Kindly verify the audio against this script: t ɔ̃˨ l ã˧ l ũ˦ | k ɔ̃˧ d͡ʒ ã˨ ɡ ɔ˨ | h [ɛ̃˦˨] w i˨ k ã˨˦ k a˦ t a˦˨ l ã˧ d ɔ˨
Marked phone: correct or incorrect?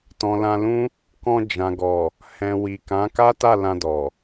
incorrect